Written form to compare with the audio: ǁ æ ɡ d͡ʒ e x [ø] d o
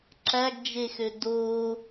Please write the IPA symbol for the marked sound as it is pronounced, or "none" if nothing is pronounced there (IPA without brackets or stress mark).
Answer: ø